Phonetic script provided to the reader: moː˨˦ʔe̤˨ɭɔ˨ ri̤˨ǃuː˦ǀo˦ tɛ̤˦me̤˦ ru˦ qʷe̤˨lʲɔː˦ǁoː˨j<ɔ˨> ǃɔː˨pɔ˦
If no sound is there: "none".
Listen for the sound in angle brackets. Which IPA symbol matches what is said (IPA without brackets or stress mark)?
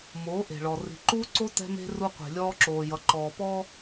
ʌ˨